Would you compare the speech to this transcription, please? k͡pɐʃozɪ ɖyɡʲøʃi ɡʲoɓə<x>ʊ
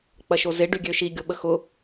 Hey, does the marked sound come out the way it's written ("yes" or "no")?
yes